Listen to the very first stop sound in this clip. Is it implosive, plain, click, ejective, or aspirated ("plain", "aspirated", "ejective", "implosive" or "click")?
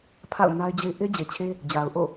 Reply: aspirated